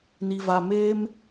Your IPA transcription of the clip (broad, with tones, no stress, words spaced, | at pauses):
ni˨va˨ meː˦m